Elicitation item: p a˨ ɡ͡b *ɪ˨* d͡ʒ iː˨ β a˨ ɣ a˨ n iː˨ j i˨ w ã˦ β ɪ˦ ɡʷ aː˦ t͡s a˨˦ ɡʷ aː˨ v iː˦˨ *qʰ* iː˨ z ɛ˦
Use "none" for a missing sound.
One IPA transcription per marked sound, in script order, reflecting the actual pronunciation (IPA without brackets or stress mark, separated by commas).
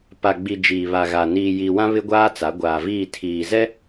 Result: i˨, tʰ